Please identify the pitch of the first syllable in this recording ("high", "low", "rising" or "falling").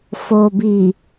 low